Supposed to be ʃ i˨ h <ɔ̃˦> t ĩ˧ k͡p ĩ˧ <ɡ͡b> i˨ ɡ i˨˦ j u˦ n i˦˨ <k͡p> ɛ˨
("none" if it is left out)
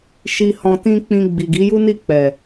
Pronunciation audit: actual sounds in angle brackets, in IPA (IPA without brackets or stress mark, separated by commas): ɔ̃˨, ɡ͡b, k͡p